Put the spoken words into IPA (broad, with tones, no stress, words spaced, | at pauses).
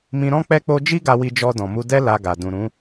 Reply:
mĩ˧ɾɔ̃˦ k͡pɛ˦k͡po˦ d͡ʒi˦ɡa˧wi˧ d͡ʒɔ˧dɔ̃˨mu˧ dɛ˦ la˧ɡa˨ dũ˨ɾũ˨˦